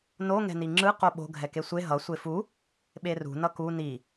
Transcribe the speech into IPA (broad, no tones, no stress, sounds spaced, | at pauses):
n o ŋ ɛ̤ n i ŋ͡ǁ ɯ q o ɓ o̤ ɡʱ ɛ k e sʷ e ɦ ʌ sʷ e f u | ɓ e r ṳ n ʌ k u n i